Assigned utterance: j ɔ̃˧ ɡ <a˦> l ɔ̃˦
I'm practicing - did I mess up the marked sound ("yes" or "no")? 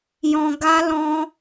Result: no